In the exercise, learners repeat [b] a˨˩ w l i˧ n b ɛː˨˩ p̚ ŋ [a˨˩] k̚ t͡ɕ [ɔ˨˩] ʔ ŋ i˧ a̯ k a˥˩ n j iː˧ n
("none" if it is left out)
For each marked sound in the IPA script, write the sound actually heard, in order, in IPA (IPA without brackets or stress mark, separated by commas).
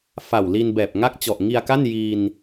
f, a˥˩, ɔ˨˩